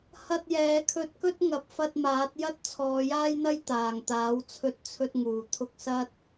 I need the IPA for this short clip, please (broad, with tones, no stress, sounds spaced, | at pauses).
h ɐ˧ t̚ j ɛː˨˧ kʰ ɵ˧ t̚ k ɵ˥ t̚ ŋ ɐ˨˥ p̚ f ɐ˧ t̚ m aː˨˥ t̚ j ɐ˥ t̚ t͡sʰ ɔː˨˧ j aː˥ j n̪ ɐ˥ j t̪ aː˨˩ ŋ t̪ aː˨˥ w t͡sʰ ɵ˧ t̚ t͡sʰ ɵ˧ t̚ ŋ uː˨˩ t̪ʰ ʊ˧ k̚ s ɐ˥ t̚